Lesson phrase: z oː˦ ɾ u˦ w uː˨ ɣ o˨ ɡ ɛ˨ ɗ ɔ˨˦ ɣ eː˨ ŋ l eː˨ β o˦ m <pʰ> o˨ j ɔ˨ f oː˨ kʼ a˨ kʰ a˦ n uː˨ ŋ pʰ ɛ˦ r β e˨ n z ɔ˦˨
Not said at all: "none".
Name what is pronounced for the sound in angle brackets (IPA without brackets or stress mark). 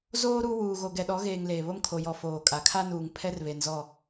kʰ